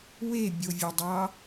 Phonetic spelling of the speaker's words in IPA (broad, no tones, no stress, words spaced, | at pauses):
webʲovʲodˤɑ